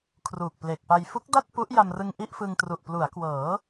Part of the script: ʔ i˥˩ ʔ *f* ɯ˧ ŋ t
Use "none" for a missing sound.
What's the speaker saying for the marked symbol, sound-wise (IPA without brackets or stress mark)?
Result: f